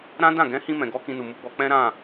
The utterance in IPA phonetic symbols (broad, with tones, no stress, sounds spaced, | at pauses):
ɾ ã˦ d ã˦˨ ɡ ɛ̃˨˦ h ĩ˧ m ɛ̃˨ ɡ ɔ˨˦ k ĩ˧ n u˨ m u˨˦ ɡ͡b ɔ˧ k͡p ɛ̃˦ ɾ ã˦˨